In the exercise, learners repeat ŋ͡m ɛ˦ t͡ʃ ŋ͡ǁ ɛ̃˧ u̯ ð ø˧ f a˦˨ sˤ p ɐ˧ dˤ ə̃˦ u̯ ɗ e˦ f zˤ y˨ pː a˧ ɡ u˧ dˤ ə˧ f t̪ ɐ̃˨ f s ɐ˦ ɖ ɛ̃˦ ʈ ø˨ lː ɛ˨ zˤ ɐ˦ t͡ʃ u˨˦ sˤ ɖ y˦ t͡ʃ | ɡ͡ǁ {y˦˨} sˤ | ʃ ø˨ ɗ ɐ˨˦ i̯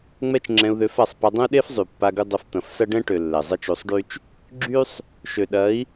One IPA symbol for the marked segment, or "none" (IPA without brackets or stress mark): y˦